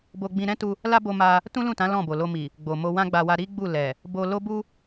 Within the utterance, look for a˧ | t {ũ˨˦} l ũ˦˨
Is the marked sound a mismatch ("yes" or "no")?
yes